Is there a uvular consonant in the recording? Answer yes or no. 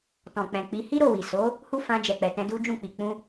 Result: no